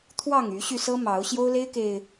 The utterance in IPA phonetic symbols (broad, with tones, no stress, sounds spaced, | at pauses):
t̪ʰ w ɑ˥˨ ŋ y˨˦ ɕ y˧ s ɤ˦ m ɑ˨˦ ʊ̯ ɕ j o˦ ʊ̯ l e˦ ɪ̯ k e˨˩ ɪ̯